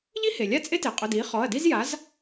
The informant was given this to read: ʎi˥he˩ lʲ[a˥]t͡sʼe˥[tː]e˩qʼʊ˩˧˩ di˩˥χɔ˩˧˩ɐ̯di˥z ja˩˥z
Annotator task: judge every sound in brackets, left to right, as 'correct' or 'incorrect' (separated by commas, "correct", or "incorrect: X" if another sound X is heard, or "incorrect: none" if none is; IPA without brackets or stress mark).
correct, incorrect: t